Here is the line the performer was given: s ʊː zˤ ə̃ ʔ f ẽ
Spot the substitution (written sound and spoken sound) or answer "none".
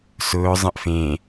none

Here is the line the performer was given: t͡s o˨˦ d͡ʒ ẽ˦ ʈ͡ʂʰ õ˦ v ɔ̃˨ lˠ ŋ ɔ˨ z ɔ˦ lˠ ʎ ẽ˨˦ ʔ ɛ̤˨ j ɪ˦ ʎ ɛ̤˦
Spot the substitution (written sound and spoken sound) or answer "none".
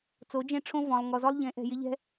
none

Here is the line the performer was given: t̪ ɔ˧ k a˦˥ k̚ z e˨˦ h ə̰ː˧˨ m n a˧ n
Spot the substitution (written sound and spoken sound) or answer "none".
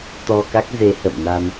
none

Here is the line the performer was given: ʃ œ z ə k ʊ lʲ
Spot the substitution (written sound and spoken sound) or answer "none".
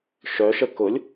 z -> ʃ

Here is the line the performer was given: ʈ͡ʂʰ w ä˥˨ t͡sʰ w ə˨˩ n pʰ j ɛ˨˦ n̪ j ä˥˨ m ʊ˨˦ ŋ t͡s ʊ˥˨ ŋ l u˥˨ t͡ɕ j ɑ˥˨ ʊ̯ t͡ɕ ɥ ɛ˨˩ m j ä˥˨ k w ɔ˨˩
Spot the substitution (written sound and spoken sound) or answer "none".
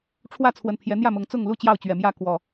none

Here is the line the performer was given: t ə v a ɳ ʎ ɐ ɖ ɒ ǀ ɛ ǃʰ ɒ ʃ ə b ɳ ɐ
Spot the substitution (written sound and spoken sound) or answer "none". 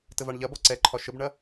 ɖ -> b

